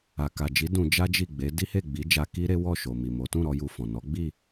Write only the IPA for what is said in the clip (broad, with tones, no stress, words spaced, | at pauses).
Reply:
a˨ka˨d͡ʒi˨˦ dũ˧d͡ʒa˦d͡ʒi˦˨ɡ͡be˨˦ di˦he˦˨ɡ͡bi˨˦d͡ʒa˧ ki˦ɾe˦ wɔ˦˨ʃo˨ mi˨mo˨˦ tũ˦˨ɾɔ˧ ju˧fɔ̃˨ nɔ˨˦ɡ͡bi˦˨